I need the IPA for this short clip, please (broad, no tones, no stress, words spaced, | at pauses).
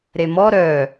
ɾemɔ ɾœ